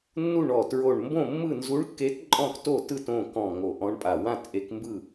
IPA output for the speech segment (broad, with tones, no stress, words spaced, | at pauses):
nːu˥˩ɳɔ˧˩ tɹo˧˩ɳmbõ˥˩ mːɯ˥˩nzu˧˥ɳkːe˧˥t ǃʼɔ̃˥˩kto˥˩tɯ˥˩t õ˥˩ kɔ̃˧˩ ŋo˧˩ʔɔ̃˧˥ɳpʼa˧˩ wã˥˩t ʔe˧˥kmbɯ˥˩